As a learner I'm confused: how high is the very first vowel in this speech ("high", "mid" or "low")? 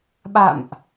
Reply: low